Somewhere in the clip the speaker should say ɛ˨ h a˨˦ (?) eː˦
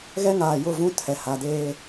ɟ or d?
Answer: d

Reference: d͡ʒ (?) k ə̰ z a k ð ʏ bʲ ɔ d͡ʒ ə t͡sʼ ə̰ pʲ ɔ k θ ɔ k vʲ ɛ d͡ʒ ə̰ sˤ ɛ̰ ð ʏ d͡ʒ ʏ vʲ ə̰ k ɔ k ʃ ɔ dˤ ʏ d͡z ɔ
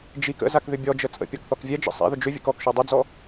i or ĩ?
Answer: i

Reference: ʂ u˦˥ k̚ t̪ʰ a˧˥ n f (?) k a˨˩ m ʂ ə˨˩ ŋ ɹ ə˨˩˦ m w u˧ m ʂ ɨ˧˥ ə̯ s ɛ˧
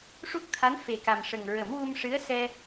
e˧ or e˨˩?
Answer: e˨˩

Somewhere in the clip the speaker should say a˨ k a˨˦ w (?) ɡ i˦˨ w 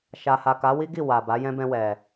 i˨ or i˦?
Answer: i˦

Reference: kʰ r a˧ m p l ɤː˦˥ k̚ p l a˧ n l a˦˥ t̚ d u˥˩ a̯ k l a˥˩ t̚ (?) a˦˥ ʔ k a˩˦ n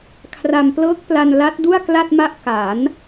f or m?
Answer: m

